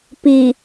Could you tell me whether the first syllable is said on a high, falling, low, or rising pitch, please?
low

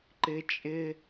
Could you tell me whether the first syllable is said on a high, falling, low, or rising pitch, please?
high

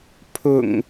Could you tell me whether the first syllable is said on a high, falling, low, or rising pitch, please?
low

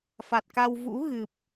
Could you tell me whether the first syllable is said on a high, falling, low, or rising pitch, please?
low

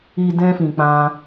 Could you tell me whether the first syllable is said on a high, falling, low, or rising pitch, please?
low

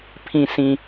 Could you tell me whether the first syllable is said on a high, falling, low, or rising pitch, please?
low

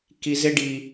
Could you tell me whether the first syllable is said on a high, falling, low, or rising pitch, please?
low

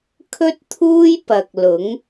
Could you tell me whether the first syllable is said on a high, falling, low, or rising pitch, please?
high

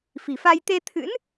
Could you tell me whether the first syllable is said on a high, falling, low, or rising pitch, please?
low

